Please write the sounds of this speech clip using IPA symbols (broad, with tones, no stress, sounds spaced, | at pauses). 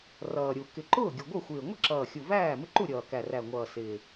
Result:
r ʌː˨˩ ɾʲ u˨˩ k ɪ˨˩ ǃ ʊː˥˩ ɡʲ ʌ˨˩ ɡʷ ʌ˥˩ xʷ ɪː˨˩ ŋʷ ɪ˥˩ ǁ ʌː˨˩ xʲ u˨˩ v æː˥˩ m ɪ˥˩ ǃ u˥˩ ɾʲ ʌː˨˩ k æ˨˩ r æ˨˩ ŋʷ ʌː˨˩ s ɪː˨˩